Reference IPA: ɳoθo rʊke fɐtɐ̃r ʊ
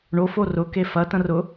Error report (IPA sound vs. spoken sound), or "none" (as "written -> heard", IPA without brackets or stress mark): θ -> f